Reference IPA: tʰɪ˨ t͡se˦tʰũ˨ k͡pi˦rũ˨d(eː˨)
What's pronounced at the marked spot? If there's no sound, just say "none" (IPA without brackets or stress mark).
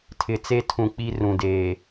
eː˨